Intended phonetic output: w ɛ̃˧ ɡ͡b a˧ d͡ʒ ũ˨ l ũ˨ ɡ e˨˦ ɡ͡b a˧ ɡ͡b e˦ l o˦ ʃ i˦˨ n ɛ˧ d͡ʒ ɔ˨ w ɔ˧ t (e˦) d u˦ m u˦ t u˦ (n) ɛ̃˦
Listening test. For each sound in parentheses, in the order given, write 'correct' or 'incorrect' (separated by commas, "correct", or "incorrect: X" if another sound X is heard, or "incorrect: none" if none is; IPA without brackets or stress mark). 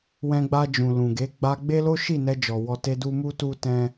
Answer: correct, incorrect: t